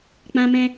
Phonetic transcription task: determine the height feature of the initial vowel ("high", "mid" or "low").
low